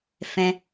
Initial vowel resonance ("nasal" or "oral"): nasal